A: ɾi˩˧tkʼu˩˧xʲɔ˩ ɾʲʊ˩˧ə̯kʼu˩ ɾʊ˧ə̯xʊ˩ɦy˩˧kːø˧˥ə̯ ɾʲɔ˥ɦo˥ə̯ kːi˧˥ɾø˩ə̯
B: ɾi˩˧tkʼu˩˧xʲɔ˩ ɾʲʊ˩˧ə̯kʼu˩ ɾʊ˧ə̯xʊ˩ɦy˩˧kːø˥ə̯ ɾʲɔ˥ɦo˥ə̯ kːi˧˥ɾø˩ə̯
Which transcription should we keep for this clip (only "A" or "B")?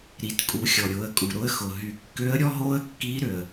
A